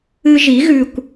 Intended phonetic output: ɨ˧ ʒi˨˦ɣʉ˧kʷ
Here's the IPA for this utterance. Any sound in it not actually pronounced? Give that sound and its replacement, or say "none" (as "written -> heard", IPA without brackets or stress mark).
none